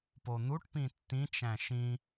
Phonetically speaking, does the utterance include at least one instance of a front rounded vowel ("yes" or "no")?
no